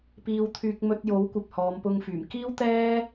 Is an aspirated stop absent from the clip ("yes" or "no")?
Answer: no